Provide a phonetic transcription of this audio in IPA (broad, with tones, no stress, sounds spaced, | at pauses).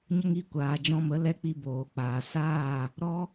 ɲ ə˦ ŋ i˧ kʷ aː˨ d͡ʒ ɔ̃˧ m ə˨˦ l ɛ˦ k͡p i˧ b oː˨ k͡p aː˨ s aː˦˨ | ɾ ɔ˦